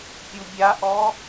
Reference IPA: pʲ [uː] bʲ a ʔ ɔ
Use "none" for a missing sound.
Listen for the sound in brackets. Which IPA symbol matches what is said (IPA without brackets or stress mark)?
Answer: u